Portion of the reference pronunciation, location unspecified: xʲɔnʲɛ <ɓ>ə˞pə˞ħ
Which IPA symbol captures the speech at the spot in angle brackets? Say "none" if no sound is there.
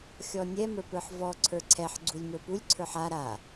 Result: m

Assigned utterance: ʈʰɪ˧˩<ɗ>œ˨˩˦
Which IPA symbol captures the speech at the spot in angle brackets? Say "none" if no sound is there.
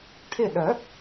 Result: ɗ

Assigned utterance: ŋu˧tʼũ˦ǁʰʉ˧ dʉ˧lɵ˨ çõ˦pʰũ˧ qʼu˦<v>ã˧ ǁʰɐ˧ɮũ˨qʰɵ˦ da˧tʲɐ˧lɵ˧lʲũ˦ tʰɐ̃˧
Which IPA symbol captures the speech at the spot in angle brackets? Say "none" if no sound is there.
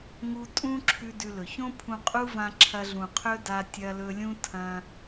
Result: v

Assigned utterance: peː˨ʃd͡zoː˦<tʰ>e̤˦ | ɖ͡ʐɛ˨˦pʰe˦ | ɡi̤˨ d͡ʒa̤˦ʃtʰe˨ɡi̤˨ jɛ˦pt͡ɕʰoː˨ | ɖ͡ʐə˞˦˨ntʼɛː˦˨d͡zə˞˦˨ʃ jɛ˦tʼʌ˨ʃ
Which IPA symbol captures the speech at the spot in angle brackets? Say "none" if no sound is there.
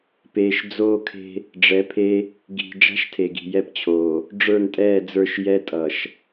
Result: kʰ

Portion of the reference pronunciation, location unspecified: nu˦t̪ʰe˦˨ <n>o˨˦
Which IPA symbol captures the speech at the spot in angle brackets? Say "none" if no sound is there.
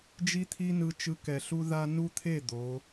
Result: d̪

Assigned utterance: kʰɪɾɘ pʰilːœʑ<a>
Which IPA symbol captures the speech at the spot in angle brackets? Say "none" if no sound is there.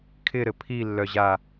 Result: a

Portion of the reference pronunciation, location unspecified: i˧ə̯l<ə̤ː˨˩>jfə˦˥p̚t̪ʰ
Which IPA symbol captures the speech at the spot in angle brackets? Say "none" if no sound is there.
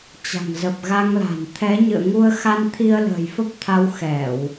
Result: ə̤ː˨˩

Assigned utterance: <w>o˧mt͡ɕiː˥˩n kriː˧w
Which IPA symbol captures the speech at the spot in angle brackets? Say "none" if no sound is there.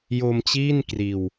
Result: j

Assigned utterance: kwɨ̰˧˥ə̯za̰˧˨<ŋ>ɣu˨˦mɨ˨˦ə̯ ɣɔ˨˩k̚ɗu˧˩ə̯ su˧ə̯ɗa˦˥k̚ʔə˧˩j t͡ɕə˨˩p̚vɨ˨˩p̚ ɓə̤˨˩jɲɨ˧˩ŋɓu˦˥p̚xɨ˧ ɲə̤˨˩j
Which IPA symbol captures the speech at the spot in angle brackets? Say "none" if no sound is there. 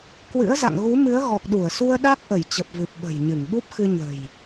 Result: ŋ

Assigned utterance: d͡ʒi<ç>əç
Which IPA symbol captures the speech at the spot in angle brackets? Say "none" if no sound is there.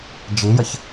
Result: j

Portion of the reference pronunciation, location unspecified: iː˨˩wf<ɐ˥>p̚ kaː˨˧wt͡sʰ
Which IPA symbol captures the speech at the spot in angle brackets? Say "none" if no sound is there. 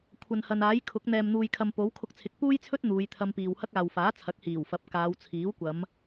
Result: ɐ˨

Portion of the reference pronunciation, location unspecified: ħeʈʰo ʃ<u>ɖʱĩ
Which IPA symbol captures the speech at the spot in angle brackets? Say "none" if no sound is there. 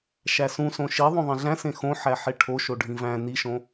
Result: o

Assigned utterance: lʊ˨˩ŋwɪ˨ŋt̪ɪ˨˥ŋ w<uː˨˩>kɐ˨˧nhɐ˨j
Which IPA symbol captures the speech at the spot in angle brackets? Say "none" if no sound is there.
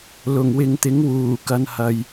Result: uː˨˩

